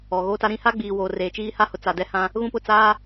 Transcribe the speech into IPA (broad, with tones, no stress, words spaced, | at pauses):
ɔ˨ɣoː˦ta˦ɾĩ˦ ha˦ɡ͡biː˨ woː˨reː˨t͡ʃiː˦ha˦ hʊ˨t͡sa˨ dɛ˦hã˦ | ɣũ˦pʊ˦˨ t͡saː˦